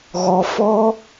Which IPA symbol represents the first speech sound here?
ɣ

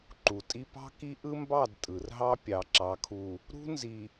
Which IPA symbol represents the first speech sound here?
ǃ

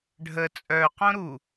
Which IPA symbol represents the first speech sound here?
ɖʱ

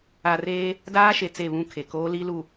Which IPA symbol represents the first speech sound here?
a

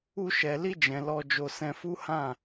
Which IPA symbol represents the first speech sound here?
u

